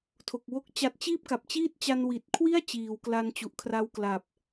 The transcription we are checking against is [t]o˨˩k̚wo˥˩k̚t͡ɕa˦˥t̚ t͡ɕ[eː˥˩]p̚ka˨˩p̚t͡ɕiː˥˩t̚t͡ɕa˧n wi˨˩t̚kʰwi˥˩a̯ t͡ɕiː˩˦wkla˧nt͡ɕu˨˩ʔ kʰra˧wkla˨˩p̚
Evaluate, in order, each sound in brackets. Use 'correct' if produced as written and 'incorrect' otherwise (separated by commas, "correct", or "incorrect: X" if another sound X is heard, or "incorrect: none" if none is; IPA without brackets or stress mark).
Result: incorrect: tʰ, incorrect: iː˥˩